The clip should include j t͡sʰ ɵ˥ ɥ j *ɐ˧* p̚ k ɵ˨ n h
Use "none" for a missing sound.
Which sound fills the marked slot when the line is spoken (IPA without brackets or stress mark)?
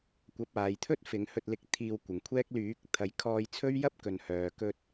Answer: ɐ˥